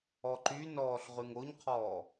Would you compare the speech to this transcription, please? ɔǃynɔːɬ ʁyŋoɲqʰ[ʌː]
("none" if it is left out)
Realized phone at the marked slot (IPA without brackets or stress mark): ɔː